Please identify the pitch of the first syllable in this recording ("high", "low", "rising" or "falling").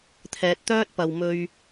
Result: low